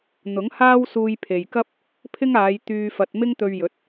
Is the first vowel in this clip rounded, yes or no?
yes